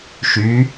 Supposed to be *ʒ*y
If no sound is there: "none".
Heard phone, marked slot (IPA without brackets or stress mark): ʃ